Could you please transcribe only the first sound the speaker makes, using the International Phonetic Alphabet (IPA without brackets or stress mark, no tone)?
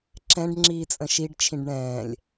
ǁ